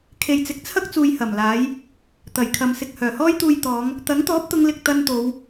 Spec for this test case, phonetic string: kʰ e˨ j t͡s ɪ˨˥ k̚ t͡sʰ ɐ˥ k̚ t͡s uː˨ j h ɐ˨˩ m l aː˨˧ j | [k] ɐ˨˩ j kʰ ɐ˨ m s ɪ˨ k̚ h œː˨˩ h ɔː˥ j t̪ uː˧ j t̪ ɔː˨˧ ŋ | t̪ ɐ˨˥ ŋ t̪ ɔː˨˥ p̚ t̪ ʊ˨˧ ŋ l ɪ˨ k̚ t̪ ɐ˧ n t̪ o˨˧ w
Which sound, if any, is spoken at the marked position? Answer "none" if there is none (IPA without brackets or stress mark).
t̪